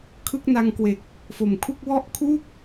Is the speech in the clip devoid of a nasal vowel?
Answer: yes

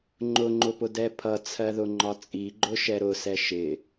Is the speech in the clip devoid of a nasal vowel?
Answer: yes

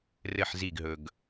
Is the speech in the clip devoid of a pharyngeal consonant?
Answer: no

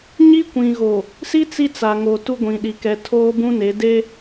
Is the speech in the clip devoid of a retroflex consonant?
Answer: yes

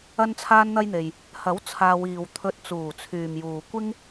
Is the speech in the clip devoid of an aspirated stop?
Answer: no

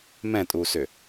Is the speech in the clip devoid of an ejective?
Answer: no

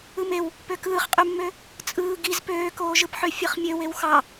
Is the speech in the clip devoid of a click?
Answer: yes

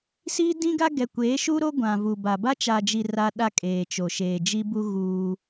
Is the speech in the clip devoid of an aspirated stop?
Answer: yes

